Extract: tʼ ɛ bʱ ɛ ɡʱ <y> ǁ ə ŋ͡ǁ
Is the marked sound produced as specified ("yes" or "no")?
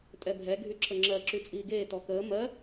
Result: yes